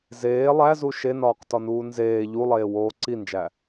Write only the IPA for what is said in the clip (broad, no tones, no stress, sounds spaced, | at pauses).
z eː lˠ æ z u ʃ e n ɒː q t ɒ n uː n z eː ʎ u lˠ eː w oː ǀ i n d͡ʒ æ